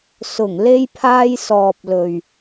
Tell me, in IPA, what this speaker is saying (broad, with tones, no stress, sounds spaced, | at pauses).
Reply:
s ʊ˨˩ ŋ l e˧ j pʰ aː˧ j s ɔː˨ p̚ l ɵ˨ ɥ